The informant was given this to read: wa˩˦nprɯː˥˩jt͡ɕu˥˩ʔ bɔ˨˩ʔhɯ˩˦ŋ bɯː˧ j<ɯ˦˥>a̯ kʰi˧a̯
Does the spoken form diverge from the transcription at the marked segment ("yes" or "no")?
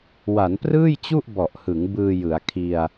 yes